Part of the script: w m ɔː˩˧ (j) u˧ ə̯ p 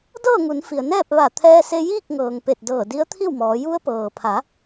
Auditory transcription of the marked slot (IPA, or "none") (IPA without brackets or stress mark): j